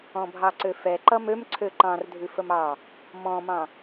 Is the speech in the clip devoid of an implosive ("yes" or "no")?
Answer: yes